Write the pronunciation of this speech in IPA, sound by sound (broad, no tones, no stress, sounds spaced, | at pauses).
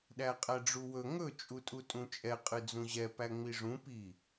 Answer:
ɗ æ qʼ æ ɖ͡ʐ u w ɵ ŋ ɵ t͡ʃʼ u tʼ u tʼ ũ t͡ʃʼ ɛ qʼ ɨ d͡z ũ ʑ ɛ p æ ŋ͡m i ʐ ũ p i